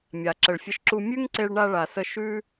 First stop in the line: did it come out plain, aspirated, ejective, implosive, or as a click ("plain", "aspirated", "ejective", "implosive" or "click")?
click